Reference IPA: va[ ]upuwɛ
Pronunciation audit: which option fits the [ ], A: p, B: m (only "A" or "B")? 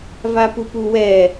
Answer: A